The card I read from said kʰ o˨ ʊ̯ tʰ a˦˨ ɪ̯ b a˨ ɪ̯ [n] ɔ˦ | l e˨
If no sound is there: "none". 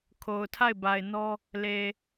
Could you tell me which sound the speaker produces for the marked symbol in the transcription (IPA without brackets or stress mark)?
n